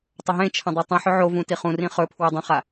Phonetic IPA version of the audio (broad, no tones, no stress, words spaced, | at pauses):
tˤɐɦẽt͡ʃʰɐ̃ dˤotˤĩħɵ ʕovũ tiχũrĩ χɵpʰwi dˤɐ̃χa